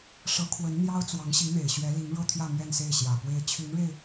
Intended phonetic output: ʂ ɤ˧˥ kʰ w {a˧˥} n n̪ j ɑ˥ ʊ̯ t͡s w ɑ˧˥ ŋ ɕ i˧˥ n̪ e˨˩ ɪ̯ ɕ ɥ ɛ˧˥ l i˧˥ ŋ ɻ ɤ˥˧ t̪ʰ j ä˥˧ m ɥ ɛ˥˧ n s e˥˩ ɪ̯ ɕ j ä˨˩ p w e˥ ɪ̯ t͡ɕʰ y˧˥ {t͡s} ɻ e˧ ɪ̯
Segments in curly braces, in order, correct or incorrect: incorrect: ə˧˥, incorrect: n

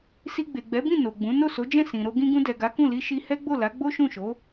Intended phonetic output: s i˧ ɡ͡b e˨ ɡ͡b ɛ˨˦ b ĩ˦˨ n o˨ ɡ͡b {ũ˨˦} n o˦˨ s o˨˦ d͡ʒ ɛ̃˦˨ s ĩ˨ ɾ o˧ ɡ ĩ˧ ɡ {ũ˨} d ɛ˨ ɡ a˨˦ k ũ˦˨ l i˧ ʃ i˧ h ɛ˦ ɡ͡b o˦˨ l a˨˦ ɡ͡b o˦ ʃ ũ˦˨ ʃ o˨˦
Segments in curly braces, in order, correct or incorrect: correct, incorrect: ũ˧

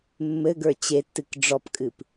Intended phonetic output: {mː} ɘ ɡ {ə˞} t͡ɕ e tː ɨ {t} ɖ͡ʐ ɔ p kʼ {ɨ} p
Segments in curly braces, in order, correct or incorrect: correct, correct, incorrect: k, correct

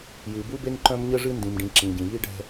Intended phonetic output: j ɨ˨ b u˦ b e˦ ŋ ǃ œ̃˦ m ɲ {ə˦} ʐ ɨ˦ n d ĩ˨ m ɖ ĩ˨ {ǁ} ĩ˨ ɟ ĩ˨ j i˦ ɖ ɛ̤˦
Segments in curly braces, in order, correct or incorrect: correct, correct

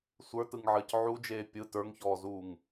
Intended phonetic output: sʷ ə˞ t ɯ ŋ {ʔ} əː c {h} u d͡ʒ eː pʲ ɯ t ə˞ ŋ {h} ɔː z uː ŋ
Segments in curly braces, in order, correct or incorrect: incorrect: ʕ, incorrect: ʕ, incorrect: ç

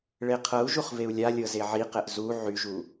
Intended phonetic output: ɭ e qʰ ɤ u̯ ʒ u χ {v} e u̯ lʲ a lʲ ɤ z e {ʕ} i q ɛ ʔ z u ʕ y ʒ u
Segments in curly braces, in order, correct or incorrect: correct, correct

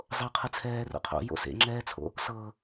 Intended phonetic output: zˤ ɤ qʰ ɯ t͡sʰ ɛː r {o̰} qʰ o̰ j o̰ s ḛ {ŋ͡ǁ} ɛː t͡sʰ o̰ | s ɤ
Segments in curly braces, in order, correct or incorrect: correct, correct

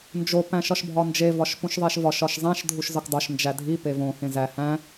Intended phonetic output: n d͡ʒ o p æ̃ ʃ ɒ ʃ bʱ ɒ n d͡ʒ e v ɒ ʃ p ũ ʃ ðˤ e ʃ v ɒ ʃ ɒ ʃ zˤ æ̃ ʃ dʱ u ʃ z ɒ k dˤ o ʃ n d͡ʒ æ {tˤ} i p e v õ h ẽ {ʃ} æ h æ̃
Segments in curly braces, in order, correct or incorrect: incorrect: dʱ, incorrect: z

